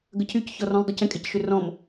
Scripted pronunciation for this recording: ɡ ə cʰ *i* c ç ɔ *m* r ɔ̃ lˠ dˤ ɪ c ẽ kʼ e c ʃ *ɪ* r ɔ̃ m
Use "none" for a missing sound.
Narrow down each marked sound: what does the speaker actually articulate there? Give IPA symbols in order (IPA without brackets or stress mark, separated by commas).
y, none, ʏ